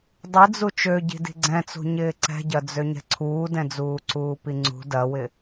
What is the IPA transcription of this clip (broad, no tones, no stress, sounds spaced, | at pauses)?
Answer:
dˤ i d͡z u t͡ʃ ø ɟ i̤ d i̤ ɡ͡ǀ ɛ̃ t͡s ṳ ɲ ɪː ǀ ɛ̤ ɟ ɐ d͡z ø ɲ ɛ̤ ǀʰ uː d ɛ̃ d͡z uː ǀ uː p i ŋ͡ǀ ṳ d ɐ w ɪ